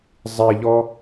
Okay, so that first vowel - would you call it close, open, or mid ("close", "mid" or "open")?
close